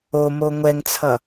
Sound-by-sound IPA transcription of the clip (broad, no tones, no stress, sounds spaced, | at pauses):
o m o ŋʷ ɛ ŋ t͡sʰ ʌ